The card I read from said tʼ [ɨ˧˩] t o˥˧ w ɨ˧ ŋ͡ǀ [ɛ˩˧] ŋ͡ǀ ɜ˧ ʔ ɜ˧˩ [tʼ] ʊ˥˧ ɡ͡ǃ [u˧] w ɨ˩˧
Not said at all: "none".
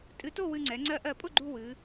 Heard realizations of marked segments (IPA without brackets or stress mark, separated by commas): ɨ˧, ɛ˩˧, pʼ, u˧